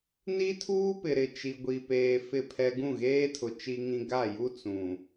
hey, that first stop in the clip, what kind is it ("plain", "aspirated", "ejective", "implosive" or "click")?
aspirated